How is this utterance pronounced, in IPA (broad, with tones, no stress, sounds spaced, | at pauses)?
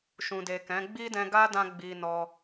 ʃ ũ˨ d e˨ k ɛ̃˨˦ ɡ͡b i˦ d ɛ̃˧ ɡ a˦ d ã˧ ɡ͡b i˧ n ɔ˧